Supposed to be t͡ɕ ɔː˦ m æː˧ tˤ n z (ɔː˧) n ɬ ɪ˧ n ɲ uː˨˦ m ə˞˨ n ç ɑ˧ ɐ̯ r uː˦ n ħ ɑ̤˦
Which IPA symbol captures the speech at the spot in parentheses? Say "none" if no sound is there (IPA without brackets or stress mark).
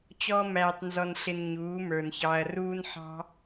ɔ˧